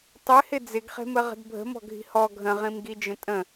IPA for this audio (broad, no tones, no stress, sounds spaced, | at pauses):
tˤ ɪ h ɪ d͡z ɪ ɡ χ e̤ m ə ʁ ə̤ d bʱ ə̤ m ɔ̤ ɡʱ i̤ h ɔ ɡʱ ə̃ ʁ ĩ m ɡ i d͡ʒ ə̃ tʼ ə̃